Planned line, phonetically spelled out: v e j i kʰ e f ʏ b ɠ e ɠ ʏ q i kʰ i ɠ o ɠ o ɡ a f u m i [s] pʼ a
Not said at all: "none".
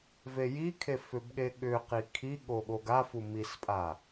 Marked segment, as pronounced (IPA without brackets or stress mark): s